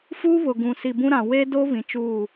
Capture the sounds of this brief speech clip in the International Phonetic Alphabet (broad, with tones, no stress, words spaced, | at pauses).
fuː˦βʊ˨ɡũ˨ si˨bũ˦ɾã˨ we˦do˦ βĩ˨t͡ʃuː˦˨